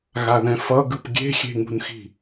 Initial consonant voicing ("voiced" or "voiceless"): voiced